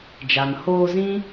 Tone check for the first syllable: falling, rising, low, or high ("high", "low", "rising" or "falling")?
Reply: low